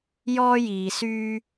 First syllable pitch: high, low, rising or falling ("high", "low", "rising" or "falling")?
high